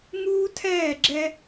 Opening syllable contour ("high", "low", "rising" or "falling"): high